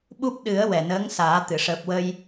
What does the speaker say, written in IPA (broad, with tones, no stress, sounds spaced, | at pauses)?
ɓ u˦˥ p̚ ɗ ɨ˨˩˦ ə̯ w ɛ˨˩ n əː˧˥ ŋ s aː˨˩˦ t̪ ɨ˨˩˨ ʂ əː˨˩ p̚ w ə˧ j